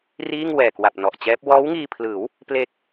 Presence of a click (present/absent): absent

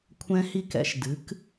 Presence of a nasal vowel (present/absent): present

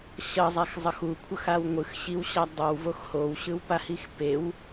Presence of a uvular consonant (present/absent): absent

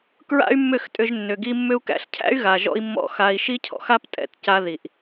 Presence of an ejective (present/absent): present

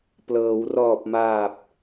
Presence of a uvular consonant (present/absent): absent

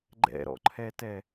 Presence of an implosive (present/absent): absent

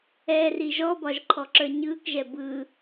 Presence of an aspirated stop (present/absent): present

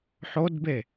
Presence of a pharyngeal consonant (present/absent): present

